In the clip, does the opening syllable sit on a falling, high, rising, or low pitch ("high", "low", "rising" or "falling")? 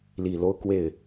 low